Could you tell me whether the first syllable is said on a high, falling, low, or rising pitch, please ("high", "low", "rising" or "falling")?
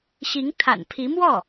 rising